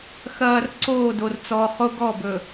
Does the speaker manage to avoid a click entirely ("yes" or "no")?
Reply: no